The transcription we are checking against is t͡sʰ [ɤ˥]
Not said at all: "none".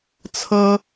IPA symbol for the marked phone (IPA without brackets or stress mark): ɤ˥